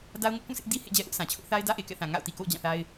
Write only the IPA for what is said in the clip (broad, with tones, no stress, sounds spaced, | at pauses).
d a˦ ʊ̯ ŋ ʊ˦ ʔ k ũ˦˨ sʰ ɪ˦ ʔ d i˦ h ḛ˦˨ d͡ʑ ɛ˦ ʔ ʊ˦ ʔ sʰ ã˨ t͡ɕʰ ʊ˦ ʔ θ a˦ ɪ̯ d ä˦ ʔ e˨ k ɛ̰˦˨ θ ã˨ ŋ a̰˦˨ ʊ̯ t i˨ k o̰˦˨ ʊ̯ d͡ʑ ã˦˨ θ a˦ ɪ̯